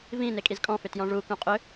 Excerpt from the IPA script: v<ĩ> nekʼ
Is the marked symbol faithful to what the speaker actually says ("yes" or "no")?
yes